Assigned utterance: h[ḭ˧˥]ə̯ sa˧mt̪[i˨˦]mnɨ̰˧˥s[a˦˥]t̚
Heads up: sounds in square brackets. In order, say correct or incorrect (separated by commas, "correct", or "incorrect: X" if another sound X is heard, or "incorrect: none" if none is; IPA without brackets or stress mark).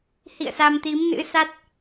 incorrect: ḭ˧˨, correct, correct